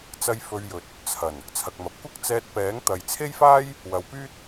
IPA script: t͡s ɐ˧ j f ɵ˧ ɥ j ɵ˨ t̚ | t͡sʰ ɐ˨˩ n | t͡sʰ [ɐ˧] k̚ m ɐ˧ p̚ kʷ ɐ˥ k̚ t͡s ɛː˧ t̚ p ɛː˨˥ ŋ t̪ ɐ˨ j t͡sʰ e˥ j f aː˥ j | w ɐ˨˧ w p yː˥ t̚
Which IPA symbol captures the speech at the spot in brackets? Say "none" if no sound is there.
ɐ˧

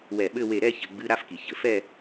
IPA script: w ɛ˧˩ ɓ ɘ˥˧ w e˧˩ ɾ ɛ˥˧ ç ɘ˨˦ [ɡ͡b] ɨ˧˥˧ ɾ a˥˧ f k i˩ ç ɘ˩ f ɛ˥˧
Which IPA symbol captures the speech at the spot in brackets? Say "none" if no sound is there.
ɡ͡b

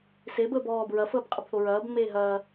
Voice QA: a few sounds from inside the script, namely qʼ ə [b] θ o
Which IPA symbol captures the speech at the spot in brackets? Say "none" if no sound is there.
b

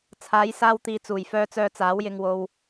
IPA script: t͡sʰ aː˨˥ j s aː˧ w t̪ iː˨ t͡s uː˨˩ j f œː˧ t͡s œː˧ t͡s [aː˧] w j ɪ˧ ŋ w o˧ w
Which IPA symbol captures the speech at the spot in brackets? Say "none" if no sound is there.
aː˨˥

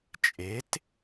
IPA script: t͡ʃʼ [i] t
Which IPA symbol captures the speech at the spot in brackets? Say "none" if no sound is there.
e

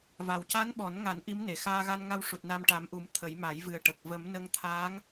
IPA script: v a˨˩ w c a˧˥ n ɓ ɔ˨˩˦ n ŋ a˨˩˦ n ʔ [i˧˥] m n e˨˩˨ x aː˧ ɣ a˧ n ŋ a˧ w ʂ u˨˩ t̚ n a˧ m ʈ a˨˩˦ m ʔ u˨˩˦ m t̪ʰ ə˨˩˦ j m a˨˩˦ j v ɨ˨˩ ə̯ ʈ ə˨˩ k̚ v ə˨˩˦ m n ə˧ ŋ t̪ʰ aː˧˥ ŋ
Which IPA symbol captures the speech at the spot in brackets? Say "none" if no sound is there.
i˧˥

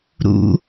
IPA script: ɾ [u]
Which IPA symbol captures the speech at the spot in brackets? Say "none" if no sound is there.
ṵ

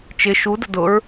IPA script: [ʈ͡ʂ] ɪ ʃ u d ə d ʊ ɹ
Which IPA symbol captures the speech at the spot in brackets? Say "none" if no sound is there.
t͡ʃ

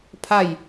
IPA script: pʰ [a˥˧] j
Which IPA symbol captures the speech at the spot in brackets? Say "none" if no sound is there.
a˥˧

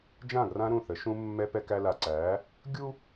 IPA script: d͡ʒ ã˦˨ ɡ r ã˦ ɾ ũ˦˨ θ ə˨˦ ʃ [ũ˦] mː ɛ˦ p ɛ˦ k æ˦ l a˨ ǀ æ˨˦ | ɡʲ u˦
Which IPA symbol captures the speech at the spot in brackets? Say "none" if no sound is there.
ũ˦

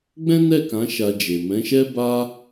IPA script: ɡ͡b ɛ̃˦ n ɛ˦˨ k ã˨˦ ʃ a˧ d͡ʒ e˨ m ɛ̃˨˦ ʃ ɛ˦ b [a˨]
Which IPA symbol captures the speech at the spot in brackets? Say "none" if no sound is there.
a˦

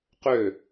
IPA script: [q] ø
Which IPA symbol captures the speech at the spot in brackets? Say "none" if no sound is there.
q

